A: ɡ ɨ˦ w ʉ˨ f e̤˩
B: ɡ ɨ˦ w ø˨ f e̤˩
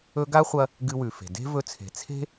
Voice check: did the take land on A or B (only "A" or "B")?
A